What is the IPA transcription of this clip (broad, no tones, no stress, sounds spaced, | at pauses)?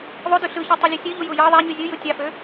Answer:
ðˤ o d y ɬ ɯ ç u tˤ ɯ lʲ e sʲ ø ʎ u j u j ɑ ðˤ æ ɲ y zʲ ɯ j ɯ tʲ ɑ f ø